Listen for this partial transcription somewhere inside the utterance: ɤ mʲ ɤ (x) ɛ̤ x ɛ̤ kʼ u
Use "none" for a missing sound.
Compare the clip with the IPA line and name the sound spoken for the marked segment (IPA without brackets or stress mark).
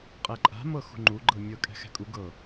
kʼ